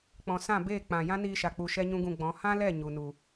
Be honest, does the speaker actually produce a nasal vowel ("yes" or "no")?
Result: yes